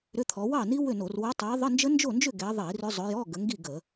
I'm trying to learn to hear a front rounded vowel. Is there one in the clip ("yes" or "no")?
yes